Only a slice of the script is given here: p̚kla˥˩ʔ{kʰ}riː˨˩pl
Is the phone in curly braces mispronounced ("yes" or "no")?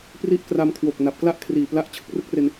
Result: no